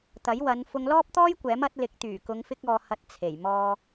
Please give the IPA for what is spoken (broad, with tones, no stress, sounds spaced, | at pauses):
t̪ ɐ˨˥ j w ɐ˨˧ n f ʊ˧ ŋ l ɔː˥ p̚ t̪ ɔː˥ j kʷ ɛː˨˥ m ɐ˨˥ t̚ l ɪ˨˥ k̚ t̪ yː˨˩ k ʊ˨˧ ŋ f ɪ˧ k̚ ɔː˨ h ɐ˧ t̚ t͡sʰ e˨˩ j m ɔː˨